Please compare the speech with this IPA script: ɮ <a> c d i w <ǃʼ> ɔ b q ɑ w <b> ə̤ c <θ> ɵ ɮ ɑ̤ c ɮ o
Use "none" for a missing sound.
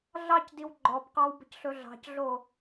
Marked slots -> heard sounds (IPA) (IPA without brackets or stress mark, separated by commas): ɑ, ɡ͡ǃ, b, ɬ